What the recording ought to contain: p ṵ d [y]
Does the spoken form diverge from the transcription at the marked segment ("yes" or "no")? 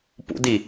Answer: yes